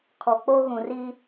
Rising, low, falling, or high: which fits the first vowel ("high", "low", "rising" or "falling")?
low